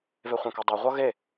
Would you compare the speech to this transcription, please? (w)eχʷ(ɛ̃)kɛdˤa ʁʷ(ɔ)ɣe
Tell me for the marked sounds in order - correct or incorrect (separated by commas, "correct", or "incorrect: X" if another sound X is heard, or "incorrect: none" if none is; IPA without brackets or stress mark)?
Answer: incorrect: v, correct, incorrect: ʌ